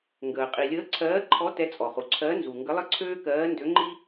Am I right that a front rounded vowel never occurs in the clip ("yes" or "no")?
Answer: no